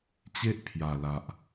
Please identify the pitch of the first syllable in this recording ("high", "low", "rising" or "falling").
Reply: high